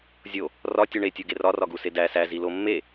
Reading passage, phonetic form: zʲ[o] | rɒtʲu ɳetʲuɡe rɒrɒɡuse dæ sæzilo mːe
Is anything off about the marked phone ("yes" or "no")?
no